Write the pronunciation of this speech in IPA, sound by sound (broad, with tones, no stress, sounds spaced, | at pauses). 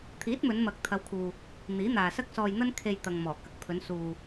t̪ʰ iː˨˥ t̚ m ɵ˨˧ n m ɐ˨ k̚ t̪ʰ ɐ˨˧ w kʰ uː˨ | n̪ iː˨˥ n̪ aː˨ s ɐ˥ k̚ s ɔː˧ j n̪ ɐ˥ n kʰ e˧ j t̪ ɐ˨ ŋ m ɔː˨˩ k ɐ˨ k̚ pʰ ɵ˨˧ n s uː˨